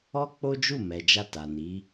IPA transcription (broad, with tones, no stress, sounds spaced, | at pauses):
ɔ˦ k͡p o˦ d͡ʒ u˦˨ m ɛ˨ d͡ʒ a˧ t a˨ n i˨˦